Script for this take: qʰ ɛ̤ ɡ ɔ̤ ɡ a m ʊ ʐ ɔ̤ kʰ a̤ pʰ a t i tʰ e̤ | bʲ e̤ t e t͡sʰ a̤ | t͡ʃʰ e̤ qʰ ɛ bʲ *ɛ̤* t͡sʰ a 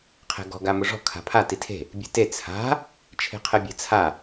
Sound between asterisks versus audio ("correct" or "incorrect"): correct